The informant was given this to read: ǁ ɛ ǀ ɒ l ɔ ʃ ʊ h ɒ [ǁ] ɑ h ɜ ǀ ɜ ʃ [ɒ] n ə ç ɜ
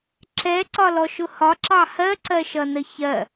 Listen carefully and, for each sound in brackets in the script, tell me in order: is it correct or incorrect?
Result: correct, incorrect

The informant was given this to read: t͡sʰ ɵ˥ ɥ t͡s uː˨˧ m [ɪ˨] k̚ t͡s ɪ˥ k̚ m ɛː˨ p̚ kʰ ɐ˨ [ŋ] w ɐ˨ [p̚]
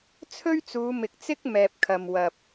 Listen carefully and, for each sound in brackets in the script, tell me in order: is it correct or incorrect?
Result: correct, incorrect, correct

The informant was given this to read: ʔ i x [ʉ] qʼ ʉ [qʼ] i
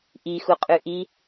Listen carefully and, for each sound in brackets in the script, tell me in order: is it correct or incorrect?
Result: incorrect, incorrect

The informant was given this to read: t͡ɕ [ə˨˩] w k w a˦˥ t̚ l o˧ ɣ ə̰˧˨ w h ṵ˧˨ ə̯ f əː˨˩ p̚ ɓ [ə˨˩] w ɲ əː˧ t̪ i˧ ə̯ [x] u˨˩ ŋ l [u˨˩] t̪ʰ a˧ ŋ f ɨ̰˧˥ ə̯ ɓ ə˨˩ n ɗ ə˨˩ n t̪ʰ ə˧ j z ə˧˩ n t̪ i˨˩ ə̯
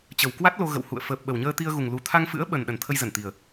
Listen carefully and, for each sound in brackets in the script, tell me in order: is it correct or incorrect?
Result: correct, correct, incorrect, correct

